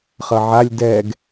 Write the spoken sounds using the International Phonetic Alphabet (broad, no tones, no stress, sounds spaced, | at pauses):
χ ʌ ʕ a lʲ d ɛ ɡ